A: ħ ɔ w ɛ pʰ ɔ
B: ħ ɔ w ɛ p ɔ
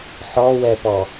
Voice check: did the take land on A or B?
B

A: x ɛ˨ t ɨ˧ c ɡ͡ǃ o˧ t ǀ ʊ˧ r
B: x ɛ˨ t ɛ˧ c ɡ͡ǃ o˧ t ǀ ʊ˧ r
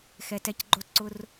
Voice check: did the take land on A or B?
B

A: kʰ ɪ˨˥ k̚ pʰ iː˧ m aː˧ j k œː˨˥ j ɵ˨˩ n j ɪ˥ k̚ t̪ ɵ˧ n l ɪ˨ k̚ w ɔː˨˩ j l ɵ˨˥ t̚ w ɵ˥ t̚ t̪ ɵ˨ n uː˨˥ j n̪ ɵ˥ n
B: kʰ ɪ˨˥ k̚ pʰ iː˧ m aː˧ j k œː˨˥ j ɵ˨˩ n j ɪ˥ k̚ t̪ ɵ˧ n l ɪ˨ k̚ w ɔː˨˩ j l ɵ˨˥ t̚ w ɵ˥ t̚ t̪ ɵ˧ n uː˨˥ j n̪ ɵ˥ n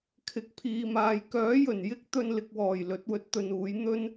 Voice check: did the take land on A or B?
B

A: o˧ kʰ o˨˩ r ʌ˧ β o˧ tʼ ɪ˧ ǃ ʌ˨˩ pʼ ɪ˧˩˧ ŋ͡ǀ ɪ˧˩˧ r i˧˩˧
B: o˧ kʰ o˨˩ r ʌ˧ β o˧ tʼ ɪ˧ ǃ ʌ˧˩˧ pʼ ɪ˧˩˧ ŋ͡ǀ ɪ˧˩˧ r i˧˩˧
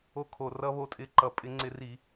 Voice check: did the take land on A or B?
A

